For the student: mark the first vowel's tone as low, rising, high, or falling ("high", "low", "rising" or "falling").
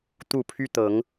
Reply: falling